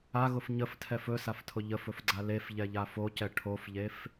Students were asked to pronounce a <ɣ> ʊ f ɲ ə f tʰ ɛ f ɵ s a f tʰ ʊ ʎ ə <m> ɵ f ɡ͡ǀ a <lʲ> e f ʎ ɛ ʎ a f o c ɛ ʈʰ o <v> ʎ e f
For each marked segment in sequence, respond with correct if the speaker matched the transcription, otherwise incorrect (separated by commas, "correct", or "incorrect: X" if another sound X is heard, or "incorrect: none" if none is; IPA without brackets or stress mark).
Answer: correct, incorrect: f, incorrect: l, incorrect: f